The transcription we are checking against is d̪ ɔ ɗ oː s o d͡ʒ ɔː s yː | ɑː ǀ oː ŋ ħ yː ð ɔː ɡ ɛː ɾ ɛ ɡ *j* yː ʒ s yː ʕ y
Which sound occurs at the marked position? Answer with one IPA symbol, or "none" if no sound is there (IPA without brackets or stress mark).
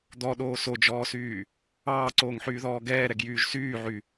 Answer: j